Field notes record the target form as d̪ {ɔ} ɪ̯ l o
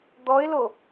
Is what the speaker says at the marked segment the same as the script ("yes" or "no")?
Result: yes